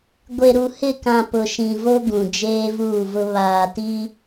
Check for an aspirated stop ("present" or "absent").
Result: absent